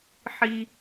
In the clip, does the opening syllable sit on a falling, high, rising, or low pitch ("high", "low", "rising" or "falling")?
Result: low